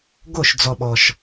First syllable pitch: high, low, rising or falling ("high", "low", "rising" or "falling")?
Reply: falling